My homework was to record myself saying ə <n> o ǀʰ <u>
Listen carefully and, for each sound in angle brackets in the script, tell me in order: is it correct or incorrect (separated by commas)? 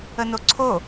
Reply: correct, incorrect